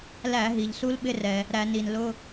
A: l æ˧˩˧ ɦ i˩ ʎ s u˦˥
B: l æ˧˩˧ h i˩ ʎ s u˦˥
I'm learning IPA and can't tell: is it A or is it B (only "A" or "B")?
A